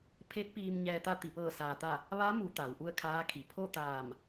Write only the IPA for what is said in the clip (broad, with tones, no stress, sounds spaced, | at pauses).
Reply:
pʰ e˧˥ t̚ p iː˧ m ɲ ɛː˧ t̪ a˥˨ t̪ i˧˩ p ɤː˧˩ s aː˩ t̪ a˧˩ | ʋ a˧˥ m u˩˧ t̪ a˩˧ w ʔ u˥˨ ə̯ kʰ aː˧˥ kʰ i˩˧ pʰ o˥˨ t̪ aː˧˩ m